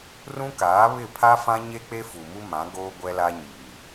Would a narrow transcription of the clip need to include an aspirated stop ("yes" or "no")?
yes